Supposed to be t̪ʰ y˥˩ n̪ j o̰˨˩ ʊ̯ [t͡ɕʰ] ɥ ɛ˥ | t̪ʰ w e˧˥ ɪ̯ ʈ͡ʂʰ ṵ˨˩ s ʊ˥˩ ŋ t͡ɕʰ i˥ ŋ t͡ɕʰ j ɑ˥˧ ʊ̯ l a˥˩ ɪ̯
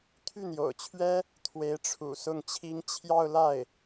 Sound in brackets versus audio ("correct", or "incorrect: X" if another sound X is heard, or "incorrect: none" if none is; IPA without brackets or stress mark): correct